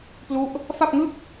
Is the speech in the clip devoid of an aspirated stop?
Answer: yes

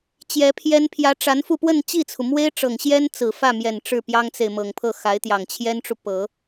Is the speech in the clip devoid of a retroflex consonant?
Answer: no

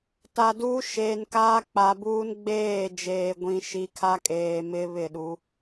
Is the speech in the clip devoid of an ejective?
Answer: no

